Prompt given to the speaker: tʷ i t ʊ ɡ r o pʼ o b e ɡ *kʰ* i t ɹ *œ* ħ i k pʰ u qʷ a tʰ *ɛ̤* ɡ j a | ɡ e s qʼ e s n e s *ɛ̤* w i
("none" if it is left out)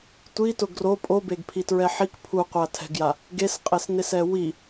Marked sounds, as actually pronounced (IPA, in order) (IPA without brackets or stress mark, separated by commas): pʰ, ɛ, ɛ̤, ɛ